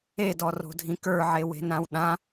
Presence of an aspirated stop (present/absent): absent